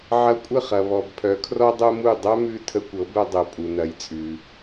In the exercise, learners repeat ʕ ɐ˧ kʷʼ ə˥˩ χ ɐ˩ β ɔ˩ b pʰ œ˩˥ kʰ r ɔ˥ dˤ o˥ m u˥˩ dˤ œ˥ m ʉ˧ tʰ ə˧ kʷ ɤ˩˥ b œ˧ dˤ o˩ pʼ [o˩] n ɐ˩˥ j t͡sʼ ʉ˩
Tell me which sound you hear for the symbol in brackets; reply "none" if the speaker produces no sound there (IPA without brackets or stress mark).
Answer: u˩